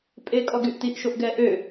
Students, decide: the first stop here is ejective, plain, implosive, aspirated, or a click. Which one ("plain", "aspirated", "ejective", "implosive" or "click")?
ejective